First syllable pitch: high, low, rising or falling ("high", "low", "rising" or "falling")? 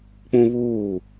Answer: high